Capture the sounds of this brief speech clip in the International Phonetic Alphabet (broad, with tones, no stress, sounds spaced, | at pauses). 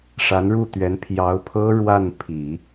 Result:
ʂ a˧˥ n ɻ u˥˩ t̪ ɥ ɛ˧˥ n pʰ j ɑ˧˥ ʊ̯ pʰ ɤ˥ ɻ w a˥˩ n pʰ i˨˩˦